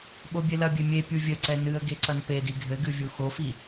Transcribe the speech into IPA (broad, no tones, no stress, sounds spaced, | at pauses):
ɓ o bʲ e l ɐ bʲ e mʲ e pʲ u vʲ ɘ ǀ ɛ n ɨ ə̯ ɡ e ǀ ɐ n p e d i ɡʱ ɘ ɡ ɨ vʲ u x o f i